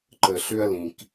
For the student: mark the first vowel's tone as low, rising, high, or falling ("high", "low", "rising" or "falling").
low